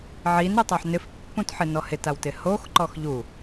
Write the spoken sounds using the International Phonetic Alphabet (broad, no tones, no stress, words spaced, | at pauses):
ʕinɾutˤoħ nɪfpːũtħɪnɔ hɪtawtɪ hoxǃɔx ʎu